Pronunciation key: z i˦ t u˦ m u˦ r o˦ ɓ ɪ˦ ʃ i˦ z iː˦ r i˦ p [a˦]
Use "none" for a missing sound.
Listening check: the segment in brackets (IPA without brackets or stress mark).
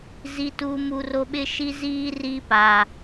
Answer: a˦